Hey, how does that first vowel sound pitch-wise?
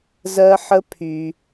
high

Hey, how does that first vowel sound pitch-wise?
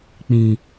low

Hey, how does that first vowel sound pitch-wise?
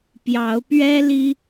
rising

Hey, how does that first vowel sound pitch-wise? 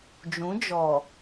rising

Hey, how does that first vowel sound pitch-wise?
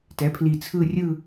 rising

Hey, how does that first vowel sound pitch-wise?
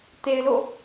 low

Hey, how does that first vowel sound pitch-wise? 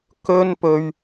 high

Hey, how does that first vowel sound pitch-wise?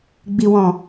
low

